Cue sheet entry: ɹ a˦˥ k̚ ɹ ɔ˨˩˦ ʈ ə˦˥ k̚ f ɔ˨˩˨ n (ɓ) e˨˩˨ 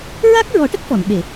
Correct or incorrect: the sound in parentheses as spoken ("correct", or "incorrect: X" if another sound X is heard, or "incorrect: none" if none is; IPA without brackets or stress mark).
correct